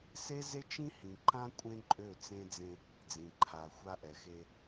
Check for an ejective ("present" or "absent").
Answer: present